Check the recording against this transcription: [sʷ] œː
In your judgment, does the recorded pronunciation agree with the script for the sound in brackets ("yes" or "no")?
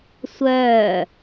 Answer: yes